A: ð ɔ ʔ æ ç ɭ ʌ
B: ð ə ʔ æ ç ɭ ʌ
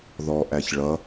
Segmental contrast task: A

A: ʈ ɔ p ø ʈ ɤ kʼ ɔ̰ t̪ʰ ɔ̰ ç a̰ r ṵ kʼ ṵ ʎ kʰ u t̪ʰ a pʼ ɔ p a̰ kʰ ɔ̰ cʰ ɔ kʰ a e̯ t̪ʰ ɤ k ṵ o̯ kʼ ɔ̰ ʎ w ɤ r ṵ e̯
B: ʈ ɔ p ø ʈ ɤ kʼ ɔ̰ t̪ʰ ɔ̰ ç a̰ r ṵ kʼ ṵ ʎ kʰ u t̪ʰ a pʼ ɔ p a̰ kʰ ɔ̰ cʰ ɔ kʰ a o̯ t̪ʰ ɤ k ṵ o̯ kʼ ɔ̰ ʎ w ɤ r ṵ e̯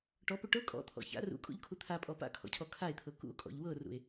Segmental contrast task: A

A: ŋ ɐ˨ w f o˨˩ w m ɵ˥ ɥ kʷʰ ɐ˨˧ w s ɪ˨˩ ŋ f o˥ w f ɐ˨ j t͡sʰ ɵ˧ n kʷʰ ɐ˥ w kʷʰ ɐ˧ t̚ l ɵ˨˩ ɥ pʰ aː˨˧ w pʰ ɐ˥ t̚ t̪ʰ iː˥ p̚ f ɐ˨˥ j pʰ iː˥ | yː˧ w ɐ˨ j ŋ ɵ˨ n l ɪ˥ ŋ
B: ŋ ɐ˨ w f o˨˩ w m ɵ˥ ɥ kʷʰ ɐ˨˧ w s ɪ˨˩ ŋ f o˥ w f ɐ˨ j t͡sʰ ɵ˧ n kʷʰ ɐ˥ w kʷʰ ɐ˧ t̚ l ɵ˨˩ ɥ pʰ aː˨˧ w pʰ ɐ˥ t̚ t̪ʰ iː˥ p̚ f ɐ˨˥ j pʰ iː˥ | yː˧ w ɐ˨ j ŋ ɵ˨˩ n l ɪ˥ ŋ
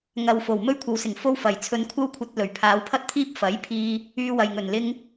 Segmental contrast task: B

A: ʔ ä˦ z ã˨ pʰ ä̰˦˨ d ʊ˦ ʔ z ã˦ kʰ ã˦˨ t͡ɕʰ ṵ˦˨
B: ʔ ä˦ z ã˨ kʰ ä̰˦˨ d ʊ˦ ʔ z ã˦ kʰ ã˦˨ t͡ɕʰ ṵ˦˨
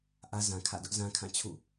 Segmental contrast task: B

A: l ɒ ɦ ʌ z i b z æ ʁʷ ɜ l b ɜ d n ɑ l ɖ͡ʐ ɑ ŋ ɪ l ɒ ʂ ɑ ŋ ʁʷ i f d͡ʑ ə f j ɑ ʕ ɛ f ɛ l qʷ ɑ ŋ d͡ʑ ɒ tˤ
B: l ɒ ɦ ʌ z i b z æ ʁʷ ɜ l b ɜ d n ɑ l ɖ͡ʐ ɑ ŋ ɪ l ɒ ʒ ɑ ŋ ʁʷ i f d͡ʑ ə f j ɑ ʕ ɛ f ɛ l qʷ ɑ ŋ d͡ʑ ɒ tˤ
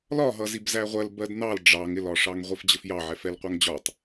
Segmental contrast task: A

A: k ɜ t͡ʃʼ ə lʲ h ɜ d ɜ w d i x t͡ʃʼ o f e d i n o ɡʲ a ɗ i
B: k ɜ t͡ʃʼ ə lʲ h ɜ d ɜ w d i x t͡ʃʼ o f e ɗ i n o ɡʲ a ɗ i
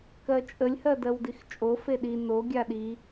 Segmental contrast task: B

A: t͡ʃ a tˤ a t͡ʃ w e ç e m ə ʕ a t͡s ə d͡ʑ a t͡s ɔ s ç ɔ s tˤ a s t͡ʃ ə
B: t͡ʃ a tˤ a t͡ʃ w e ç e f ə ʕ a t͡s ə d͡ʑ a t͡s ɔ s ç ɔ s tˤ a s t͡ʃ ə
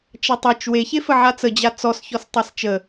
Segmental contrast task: B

